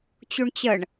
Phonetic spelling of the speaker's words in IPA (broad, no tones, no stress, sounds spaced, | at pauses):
t͡ɕ u ɳ t͡ɕ ə ɳ